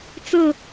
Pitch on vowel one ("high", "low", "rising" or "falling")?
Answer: falling